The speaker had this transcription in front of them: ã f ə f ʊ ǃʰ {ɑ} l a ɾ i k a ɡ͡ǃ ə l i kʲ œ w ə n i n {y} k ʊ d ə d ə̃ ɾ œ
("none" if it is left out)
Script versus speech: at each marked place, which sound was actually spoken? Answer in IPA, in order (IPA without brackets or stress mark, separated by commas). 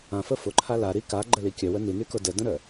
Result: a, y